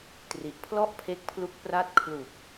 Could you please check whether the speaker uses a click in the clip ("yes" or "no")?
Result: no